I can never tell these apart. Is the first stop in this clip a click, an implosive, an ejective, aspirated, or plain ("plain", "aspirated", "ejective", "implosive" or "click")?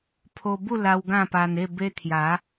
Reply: aspirated